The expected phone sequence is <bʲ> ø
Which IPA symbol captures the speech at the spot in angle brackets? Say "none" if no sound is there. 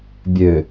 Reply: bʲ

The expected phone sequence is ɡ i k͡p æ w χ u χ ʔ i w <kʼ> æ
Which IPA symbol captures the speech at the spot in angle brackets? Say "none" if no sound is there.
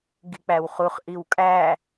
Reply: kʼ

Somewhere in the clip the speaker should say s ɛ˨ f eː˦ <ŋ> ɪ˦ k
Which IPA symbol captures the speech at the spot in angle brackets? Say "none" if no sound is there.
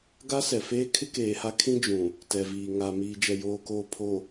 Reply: kʰ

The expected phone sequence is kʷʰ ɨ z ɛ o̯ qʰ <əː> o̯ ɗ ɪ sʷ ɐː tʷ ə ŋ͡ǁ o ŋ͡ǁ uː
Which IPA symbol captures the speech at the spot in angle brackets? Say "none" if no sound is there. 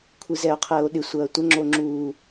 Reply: əː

